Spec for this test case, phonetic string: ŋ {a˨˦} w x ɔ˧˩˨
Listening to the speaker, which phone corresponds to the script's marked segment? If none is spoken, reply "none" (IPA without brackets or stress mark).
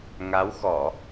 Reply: a˨˦